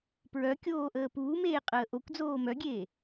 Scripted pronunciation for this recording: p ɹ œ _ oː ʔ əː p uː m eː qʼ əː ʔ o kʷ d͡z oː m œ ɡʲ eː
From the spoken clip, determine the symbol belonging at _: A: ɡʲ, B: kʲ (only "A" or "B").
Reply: B